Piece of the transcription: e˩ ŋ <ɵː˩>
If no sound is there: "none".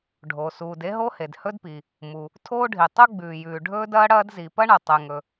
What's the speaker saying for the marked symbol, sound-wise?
ɵ˩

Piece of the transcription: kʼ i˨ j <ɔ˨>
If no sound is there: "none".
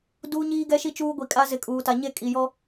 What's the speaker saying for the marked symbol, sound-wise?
ɔ˦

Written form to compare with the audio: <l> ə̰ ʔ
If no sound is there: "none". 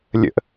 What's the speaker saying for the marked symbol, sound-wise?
lʲ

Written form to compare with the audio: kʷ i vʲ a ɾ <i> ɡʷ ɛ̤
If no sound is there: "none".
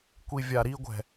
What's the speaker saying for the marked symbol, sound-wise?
i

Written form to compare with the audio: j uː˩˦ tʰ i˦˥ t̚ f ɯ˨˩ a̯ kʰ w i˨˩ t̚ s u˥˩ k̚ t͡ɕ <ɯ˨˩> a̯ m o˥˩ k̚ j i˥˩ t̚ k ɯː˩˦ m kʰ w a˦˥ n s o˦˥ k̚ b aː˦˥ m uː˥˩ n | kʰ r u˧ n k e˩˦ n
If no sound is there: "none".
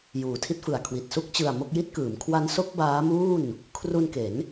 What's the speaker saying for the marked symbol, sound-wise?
ɯ˨˩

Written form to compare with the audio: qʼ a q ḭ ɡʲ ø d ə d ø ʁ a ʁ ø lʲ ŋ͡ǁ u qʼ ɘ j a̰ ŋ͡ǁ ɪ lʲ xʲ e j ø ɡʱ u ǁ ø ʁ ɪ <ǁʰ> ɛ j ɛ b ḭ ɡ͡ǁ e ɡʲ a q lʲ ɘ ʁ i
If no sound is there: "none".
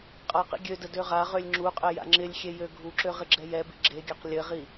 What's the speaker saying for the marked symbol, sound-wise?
ɡ͡ǁ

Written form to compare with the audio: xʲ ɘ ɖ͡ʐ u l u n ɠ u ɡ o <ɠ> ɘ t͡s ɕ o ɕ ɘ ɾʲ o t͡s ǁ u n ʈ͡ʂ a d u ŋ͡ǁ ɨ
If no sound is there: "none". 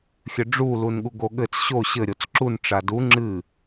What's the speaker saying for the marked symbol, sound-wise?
ɠ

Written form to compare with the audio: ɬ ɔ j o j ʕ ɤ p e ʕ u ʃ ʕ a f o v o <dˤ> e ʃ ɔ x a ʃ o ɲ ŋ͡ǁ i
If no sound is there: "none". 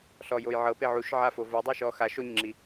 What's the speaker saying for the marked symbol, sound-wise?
dˤ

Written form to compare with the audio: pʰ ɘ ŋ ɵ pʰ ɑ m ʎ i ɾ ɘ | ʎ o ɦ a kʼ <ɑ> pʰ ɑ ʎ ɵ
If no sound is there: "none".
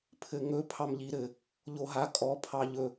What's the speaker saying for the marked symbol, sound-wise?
ɔ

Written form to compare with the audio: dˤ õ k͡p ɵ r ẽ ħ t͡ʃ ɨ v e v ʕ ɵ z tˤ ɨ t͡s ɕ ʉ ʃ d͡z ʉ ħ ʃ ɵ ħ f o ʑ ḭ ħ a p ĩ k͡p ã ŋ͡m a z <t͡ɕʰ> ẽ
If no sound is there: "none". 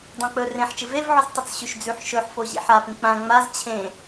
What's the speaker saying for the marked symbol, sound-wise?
t͡ɕʰ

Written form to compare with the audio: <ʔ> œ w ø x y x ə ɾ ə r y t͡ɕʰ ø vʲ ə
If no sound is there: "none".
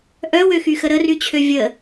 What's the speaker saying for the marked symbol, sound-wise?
ʔ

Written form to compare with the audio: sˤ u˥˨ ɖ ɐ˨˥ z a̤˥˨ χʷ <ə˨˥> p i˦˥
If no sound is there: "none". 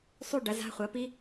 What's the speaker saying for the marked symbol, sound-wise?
ɐ˨˥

